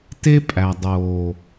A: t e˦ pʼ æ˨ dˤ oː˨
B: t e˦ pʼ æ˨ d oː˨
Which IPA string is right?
A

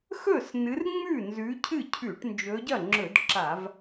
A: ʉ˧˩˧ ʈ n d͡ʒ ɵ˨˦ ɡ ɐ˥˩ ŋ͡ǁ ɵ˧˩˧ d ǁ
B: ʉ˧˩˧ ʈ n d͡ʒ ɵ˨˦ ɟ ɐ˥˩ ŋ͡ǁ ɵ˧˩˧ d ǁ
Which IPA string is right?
B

